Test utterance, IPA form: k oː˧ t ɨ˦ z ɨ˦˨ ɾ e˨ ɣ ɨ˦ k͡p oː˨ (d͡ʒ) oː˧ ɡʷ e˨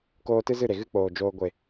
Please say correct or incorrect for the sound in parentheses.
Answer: correct